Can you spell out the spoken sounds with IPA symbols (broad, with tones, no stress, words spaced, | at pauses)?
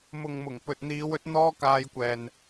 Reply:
mʊ˨ŋmʊ˨˩ŋ pɵ˨t̚n̪iː˨˧wɵ˨˥t̚ n̪ɔː˥kaː˧jkʷɛː˨n